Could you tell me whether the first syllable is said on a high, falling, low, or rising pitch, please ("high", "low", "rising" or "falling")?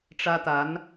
high